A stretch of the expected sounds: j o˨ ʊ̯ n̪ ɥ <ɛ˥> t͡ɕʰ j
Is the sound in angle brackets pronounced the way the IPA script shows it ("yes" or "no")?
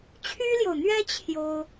yes